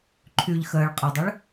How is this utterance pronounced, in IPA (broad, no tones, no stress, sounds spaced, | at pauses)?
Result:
ǃʰ y ʎ x əː ɭ qʼ ɐ dˤ ɐ ɭ